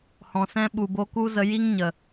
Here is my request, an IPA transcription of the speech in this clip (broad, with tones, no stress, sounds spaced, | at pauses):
h ɔ̃˨ s ɛ̃˧ ɓ u˨ b o˧ k u˦ z ə˧ j i˦ ŋ ɲ ə˨